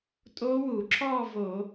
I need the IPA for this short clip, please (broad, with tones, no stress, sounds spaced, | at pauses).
tʼ oː˦˥ w uː˧˩˧ ǁ ɔː˥˧ v o˧˩˧